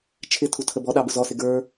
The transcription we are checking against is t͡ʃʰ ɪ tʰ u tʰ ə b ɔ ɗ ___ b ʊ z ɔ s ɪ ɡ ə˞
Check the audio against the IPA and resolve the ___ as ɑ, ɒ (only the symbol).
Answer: ɑ